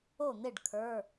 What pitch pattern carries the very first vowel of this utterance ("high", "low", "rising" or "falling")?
falling